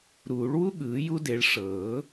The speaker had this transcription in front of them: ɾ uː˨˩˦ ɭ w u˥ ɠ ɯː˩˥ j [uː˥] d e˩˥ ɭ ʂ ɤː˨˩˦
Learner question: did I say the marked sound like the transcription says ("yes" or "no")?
no